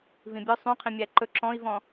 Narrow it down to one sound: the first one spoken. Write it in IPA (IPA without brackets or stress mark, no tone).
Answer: v